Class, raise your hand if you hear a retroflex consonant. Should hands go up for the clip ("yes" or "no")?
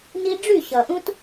yes